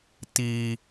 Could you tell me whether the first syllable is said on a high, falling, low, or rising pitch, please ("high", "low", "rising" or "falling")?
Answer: high